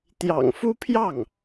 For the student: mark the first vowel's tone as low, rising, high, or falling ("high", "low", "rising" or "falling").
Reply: low